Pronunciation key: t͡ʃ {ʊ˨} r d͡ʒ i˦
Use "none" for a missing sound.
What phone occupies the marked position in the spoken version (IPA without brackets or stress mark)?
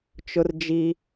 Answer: ʊ˦